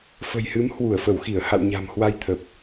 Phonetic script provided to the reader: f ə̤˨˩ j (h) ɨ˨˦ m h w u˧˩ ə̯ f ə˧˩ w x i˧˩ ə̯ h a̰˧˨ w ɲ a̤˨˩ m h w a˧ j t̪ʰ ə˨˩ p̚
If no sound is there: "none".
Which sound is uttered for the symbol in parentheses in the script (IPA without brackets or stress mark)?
h